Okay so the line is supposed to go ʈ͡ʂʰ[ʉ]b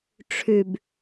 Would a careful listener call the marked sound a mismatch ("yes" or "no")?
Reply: no